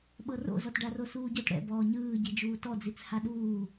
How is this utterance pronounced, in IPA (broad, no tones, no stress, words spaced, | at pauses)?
ɓɤro̰ zɔtɖaro suːɟɤt ɽɛ̰ bɔːɲɯːɟi d͡ʒuːtɔd͡zit͡s haɗuː